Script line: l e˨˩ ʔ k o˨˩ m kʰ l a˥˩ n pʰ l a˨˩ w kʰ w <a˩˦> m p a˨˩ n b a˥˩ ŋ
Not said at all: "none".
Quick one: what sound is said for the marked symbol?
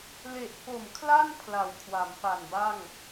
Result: a˩˦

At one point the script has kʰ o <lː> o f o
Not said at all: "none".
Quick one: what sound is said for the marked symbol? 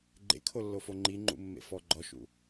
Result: lː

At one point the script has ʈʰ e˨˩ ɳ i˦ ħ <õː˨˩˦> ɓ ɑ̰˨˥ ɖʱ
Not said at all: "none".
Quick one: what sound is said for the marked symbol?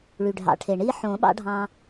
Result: õː˨˩˦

